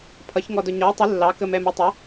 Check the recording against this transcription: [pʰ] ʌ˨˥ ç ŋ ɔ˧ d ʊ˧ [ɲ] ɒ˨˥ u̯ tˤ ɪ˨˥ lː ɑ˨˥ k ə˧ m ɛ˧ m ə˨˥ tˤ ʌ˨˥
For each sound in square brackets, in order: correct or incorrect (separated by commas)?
correct, correct